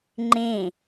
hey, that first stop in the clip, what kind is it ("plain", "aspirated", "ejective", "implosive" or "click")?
click